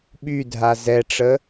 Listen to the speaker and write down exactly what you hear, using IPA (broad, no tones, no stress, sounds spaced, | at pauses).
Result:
ɓ y dʱ a z ɛ ʈ͡ʂ ə